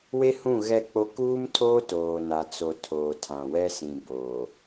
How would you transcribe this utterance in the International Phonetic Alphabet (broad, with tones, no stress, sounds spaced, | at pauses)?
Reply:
w e˦ h ũ˦˨ ɣ ɛ˦˨ k͡p o˦ k uː˦ m tʰ oː˦ t oː˨ n a˨ t͡s o˨ tʰ oː˨ tʰ ã˨ w ɛ˦ s ĩ˨ b oː˨